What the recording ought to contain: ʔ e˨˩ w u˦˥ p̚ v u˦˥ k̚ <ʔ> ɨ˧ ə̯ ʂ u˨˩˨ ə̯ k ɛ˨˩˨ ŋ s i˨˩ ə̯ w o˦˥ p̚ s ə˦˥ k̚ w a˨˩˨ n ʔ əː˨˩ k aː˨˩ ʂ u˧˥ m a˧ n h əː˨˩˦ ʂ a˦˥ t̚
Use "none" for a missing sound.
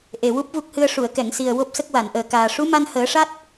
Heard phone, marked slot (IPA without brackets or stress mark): h